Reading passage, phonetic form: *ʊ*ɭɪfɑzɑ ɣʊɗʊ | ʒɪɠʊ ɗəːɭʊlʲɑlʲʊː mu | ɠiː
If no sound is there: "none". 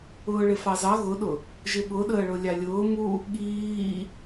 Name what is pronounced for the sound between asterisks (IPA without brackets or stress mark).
ʊː